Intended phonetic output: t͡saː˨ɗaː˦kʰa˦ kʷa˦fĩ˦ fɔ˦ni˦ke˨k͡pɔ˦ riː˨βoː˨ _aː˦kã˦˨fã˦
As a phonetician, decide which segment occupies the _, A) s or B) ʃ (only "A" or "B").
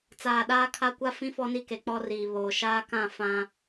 B